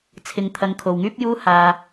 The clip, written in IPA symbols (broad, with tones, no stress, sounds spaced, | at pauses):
t͡sʰ ɪ˧ ŋ t̪ʰ ɐ˨˧ ŋ kʰ o˨ w ŋ yː˥ p̚ j uː˥ h aː˨